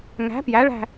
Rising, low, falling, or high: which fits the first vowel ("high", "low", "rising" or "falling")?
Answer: rising